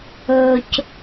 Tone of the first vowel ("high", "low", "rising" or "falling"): low